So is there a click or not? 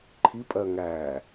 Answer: yes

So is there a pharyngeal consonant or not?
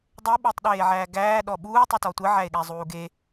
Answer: yes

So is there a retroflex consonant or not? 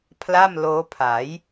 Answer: no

